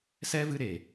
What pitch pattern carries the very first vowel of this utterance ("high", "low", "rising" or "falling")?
high